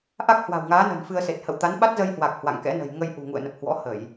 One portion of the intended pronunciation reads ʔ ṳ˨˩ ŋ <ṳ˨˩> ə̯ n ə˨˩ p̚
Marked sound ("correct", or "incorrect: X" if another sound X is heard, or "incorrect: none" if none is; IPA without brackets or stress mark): incorrect: ṵ˧˨